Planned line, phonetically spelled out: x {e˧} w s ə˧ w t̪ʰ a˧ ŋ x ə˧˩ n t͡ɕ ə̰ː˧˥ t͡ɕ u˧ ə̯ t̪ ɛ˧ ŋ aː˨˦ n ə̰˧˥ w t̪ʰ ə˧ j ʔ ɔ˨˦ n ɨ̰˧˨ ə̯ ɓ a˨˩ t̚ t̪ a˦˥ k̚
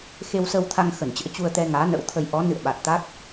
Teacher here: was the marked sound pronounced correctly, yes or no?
yes